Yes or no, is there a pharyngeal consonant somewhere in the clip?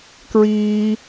no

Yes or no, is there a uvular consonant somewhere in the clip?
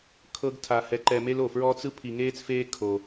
no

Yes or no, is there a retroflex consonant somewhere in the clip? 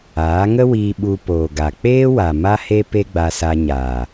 no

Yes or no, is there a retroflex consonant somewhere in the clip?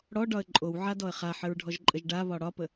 yes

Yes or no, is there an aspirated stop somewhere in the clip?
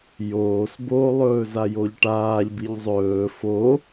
no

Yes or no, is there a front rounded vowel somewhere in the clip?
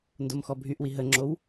yes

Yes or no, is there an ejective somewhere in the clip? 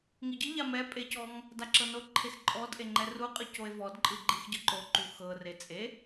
yes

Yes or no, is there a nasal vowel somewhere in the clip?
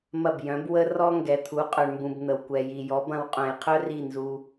yes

